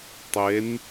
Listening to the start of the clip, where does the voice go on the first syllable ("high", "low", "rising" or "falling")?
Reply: rising